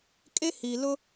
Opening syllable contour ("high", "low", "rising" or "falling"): high